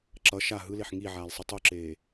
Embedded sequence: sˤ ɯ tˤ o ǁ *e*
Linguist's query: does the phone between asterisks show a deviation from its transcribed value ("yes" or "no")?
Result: yes